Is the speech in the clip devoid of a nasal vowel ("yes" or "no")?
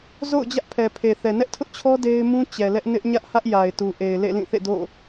no